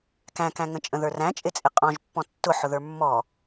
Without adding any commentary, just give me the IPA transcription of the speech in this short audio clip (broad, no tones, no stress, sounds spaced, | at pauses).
k æ̃ k æ̃ ŋ ə̃ t͡ʃʼ ə̃ ð ə˞ r æ̃ t͡ʃʼ ɪ t͡sʼ ɪ qʼ ɔ̃ ʒ pː ɔ̃ tː ʊ ħ ʊ ð ə˞ mː ɔ